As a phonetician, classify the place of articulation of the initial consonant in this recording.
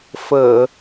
labial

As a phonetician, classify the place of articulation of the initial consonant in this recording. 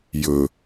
palatal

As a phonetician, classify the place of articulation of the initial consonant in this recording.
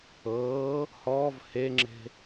glottal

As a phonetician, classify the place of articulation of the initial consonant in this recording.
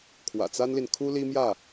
velar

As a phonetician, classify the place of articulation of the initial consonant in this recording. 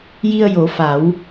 palatal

